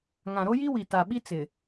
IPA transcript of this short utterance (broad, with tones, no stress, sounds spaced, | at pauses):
ŋ ã˨ ɾ o˦ j i˦ w i˨ t a˨ ɓ i˦ t͡s ɪ˨